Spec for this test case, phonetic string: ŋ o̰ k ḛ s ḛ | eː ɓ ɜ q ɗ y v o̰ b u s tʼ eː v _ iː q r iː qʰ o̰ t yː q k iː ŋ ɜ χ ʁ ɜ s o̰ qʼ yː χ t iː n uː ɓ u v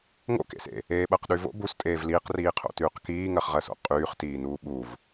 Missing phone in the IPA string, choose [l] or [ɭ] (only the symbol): l